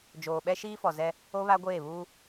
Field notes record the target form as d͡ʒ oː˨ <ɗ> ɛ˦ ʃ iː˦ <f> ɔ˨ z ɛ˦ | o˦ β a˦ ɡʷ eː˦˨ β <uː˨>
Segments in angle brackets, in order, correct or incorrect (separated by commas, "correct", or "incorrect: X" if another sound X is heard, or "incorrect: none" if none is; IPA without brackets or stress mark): incorrect: ɓ, correct, incorrect: uː˦